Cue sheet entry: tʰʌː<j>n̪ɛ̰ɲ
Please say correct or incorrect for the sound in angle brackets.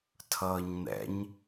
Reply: incorrect: ɲ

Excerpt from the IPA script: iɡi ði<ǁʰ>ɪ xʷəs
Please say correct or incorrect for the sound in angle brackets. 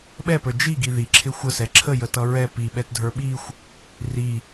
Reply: correct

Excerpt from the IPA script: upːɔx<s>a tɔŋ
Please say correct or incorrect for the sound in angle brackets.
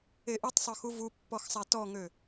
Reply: incorrect: sˤ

